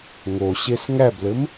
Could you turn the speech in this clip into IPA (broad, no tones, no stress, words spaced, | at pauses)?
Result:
ŋo ɕesŋæblɘm